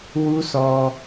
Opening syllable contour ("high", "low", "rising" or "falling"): high